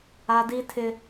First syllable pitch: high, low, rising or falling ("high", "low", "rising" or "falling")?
high